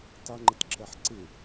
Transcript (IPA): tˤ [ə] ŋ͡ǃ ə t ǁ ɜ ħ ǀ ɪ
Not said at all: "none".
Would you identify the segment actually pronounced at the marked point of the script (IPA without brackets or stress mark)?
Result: ə